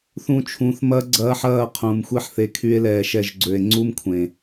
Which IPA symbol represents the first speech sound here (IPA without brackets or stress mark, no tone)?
θ